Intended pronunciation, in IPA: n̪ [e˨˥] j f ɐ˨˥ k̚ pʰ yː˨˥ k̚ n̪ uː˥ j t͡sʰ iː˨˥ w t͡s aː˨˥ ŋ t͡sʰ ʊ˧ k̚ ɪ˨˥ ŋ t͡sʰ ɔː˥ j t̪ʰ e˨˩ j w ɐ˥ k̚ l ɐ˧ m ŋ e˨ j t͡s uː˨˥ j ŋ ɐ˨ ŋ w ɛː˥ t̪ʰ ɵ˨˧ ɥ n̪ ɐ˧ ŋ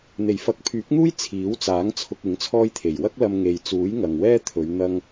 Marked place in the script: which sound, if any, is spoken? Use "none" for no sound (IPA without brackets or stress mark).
e˨˩